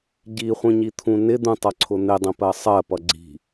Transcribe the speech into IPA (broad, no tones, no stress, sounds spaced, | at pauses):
ɟ i χʷ ĩ ɲ i t̪ʰ ũ n ɪ d̪ ũ tˤ ʌ ǀʰ ʊ n̪ ɪ dˤ ə̃ p ɜ sˤ ɜ p ʌ ɡ͡ǀ i̤